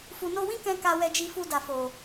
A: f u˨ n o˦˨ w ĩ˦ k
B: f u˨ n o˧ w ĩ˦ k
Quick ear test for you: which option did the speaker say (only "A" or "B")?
B